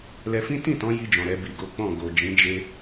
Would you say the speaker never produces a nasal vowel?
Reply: no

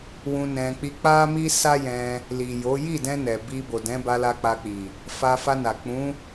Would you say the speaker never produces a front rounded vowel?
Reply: yes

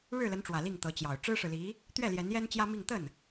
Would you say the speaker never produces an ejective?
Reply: yes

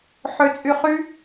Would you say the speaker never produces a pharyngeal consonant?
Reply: no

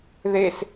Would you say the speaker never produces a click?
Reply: yes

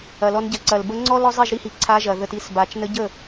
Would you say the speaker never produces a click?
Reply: no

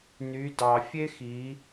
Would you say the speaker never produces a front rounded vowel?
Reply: no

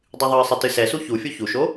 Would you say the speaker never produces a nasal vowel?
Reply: yes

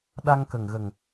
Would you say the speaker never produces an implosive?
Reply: no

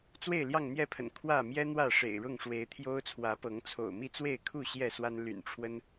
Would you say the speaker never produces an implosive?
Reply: yes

